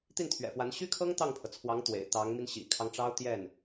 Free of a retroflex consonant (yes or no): no